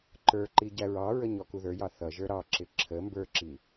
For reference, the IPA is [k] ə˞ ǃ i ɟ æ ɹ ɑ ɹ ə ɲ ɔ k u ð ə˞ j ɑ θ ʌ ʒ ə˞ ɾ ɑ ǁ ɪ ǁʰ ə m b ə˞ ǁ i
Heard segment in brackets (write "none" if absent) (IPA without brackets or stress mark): ǃ